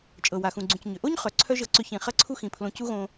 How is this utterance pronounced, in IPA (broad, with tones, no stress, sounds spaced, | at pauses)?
t͡ʃʼ ɤ˨ w a˨ x ũ˨ ɡ͡ǀ ũ˨ c ɲ ʏ˨ ʔ o˦ ɲ χ œ˨ ǀʰ œ˦ ʒ ɤ˧ ǀ ʏ˧ ç ĩ˨ χ ɐ˧ ǀʰ u˧ x ĩ˨ pʰ l õ˧ c u˦ ɣ õ˧